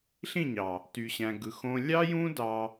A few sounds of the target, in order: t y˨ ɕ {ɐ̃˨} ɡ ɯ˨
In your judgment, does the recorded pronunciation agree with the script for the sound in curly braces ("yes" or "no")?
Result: no